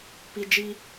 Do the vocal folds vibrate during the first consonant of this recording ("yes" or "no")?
no